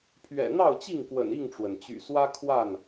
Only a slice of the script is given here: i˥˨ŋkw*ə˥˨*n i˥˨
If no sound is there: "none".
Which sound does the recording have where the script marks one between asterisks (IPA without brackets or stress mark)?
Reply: ə̰˨˩